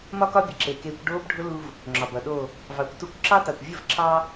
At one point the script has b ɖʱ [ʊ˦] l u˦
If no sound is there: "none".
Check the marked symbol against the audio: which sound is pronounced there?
ʊ˦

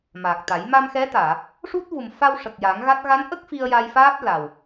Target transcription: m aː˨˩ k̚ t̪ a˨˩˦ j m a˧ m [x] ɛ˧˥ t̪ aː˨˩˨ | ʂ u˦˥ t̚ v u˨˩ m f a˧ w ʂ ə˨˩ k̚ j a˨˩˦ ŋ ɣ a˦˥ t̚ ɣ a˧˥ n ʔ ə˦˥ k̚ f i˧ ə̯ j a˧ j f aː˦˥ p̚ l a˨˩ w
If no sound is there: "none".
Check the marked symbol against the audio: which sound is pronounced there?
x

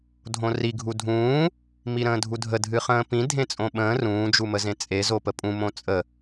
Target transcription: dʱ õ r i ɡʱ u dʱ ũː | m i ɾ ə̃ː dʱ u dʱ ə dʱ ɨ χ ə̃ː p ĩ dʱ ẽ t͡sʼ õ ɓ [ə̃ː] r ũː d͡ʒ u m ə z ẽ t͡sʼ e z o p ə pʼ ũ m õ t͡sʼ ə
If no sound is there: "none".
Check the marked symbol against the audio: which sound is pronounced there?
ə̃ː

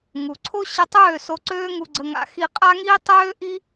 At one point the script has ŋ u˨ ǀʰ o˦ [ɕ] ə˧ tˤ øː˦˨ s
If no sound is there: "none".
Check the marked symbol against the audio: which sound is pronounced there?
ɕ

